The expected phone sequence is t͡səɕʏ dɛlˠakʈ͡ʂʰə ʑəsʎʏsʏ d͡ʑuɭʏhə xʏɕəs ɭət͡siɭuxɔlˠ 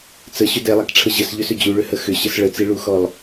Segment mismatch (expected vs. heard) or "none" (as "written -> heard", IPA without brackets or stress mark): none